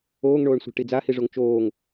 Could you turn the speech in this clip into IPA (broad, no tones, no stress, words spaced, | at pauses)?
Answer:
oːŋɳoːɳsʷa̤ʈi d͡zahiʐoŋ t͡ʃoːŋ